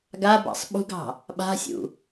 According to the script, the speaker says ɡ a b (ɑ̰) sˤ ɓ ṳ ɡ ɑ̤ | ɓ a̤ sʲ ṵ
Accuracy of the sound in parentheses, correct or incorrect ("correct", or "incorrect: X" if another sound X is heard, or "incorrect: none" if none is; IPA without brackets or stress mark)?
correct